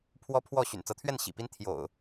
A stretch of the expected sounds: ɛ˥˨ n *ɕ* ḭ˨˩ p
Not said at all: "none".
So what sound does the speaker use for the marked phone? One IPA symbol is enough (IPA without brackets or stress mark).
ɕ